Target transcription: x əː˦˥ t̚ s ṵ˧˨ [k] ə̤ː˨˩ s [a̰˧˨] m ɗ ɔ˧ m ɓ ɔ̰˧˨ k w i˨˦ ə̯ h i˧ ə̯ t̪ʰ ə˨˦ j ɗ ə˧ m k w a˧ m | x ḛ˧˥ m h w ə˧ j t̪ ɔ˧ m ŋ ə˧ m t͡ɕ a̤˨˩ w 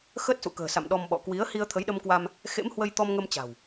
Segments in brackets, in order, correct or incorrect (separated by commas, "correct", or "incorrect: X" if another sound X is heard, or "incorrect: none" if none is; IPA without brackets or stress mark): correct, correct